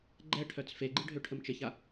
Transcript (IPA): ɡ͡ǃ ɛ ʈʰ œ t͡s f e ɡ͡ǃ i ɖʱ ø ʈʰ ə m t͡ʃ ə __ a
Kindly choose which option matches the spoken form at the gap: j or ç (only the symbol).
ç